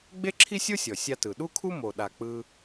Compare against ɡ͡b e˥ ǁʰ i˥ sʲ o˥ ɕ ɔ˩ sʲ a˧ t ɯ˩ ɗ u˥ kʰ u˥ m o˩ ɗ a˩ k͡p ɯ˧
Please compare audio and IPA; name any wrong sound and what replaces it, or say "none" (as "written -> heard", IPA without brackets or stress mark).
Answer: ɕ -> sʲ